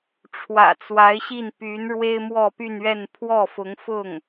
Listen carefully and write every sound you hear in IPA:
ʈ͡ʂʰ w ä̰˨˩ t͡s w a˧˥ ɪ̯ ɕ i˥˩ n p y˧˥ n ɻ w e˥ ɪ̯ m w ɔ˥˧ p y˥˧ n ɥ ɛ˥˧ n pʰ w ɔ˥˩ f ʊ˧˥ ŋ f ʊ˥˩ ŋ

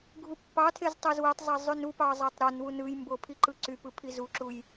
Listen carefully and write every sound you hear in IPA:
ɡʱ u pː ɑ tʰ e z tˤ o z w e tˤ zˤ æ zˤ y n u p ɑ zˤ ɑ tˤ ɾ o n w u n ɯ j m b o pʰ i ǃ ɯ ǀ y p ɯ pʰ i z u ǁ u j

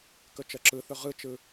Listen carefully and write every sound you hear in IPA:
k ɵ t͡ʃ ɜ ǁ ɯ θ ɵ ʁ ɯ t͡ʃ ɯ

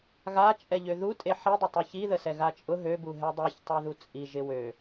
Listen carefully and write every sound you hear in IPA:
ɣ a t͡ʃʼ ɛ ʎ ø ð u tʼ e ħ i dˤ ɪ tˤ u ç i ð ə s ɛ ɣ a t͡ʃʼ ʊ ɦ ø b u ɦ ɛ dˤ i ç tˤ ə˞ ð u t͡sʼ i ʒ ɪ w ø

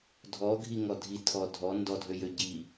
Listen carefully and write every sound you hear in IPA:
dʱ ɔ ɡʱ i ŋ ɔ dʱ i tʰ ɔ dʱ ɔ n d ɔ dʱ ø j ø ɟ i

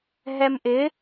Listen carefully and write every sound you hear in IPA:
ɦ ɛ m ʔ ɪ

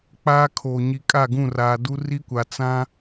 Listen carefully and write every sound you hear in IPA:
k͡p aː˦ kʰ oː˨ ɲ i˨ kʼ a˦˨ ɡ ũ˦˨ r aː˨ d u˦ r i˦ kʷ a˨ t͡s ã˦

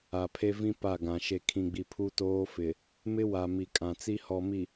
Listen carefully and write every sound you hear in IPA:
a˨ pʰ e˦ v ĩ˦ p a˦˨ ɡ ã˨ ʃ e˨ kʰ ĩ˨ ɡ͡b i˨ pʰ u˦ t oː˦ f ɪ˨ | m ɪ˦ w a˨ m i˨ kʼ ã˨ t͡s i˦ h ɔ˨ m i˨

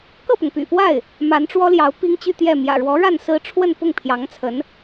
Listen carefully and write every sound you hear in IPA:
k ɤ˥˩ p ʊ˩ ŋ p y̰˨˩ p w a˥˩ ɪ̯ | m a˧˥ n ʈ͡ʂ w ɔ˥ l j ɑ˧˥ ʊ̯ p i˥ ŋ t͡ɕ y˥˧ t̪ j ɛ˥˩ m j ä̰˨˩ ɻ w ɔ˧˥ ɻ a˥˩ n s ɹ̩˥ ʈ͡ʂʰ w ə˥˧ n p ʊ˥˩ ŋ pʰ j ɑ˧˥ ŋ t͡sʰ ə˧˥ n

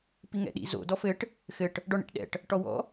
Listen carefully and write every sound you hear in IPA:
p i ŋ ɛ̰ ɗ ḭ z o̰ d ɔ f ɘ ʈ | x ɘ ʈ | ɖ ɔ ɳ ḭ ʈ ɗ ɛ̰ ʈ | ʈ ɔ w ɔ̰

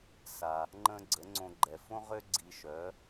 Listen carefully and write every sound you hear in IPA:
s a˩ | ŋ͡ǃ ə̃˥ ɡ͡ǀ ə˩˥ ŋ͡ǀ õ˧ ɡ͡ǃ ɛ˩ f õ˥ ʁ ø˥ ɡ͡ǀ i˧ ʃ œ˩˥

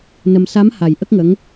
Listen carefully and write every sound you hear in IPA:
n ə˧ m s a˧˥ m h a˨˩ j ʔ ə˦˥ k̚ ŋ ə˧˥ ŋ

